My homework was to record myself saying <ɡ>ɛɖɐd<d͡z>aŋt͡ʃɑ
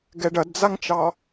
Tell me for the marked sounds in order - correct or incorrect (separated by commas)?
correct, correct